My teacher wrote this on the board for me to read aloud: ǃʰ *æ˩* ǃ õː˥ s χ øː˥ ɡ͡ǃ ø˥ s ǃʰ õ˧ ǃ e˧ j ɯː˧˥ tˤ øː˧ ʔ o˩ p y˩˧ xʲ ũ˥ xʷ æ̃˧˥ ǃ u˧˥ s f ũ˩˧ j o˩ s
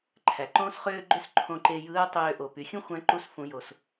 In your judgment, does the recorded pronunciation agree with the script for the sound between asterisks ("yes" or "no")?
yes